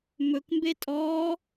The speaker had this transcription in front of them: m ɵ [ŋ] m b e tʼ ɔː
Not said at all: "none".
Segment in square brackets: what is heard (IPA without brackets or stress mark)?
k